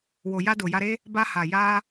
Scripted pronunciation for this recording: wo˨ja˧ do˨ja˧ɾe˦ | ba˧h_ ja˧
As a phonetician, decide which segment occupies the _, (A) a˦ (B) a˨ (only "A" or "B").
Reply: B